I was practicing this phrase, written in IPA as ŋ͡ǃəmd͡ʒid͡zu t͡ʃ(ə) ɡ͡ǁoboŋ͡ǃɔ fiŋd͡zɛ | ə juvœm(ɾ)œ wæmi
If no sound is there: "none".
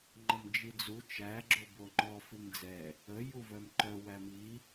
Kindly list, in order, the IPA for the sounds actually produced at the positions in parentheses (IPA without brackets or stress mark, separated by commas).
æ, ǃ